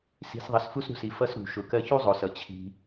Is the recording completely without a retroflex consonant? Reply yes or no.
yes